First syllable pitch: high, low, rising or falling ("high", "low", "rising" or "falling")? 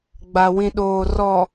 low